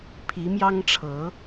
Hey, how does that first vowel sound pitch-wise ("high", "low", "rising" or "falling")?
rising